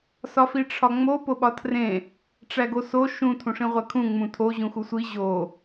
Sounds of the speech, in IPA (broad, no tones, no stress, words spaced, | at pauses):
sɒfiʈ͡ʂʰɒŋ͡mo poɓɒtʰrẽ | ʈ͡ʂæɡoso ʃũ tʰũʂĩʁʷækʰũ ŋ͡mũtʰo ʑũxusʷi ʑo